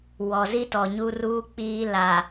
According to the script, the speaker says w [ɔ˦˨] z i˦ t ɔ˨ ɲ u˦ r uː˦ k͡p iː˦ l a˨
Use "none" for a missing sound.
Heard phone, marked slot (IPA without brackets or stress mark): ɔ˨